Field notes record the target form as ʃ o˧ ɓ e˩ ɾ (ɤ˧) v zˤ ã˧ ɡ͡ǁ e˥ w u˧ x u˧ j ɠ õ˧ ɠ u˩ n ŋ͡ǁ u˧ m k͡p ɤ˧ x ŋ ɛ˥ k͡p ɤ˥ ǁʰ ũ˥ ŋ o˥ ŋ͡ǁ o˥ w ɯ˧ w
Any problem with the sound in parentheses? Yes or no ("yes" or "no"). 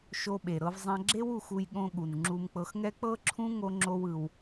no